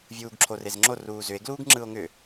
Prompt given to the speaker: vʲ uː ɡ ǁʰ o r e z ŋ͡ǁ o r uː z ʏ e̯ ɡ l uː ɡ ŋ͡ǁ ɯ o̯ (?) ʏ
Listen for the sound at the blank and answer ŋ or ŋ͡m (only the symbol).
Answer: ŋ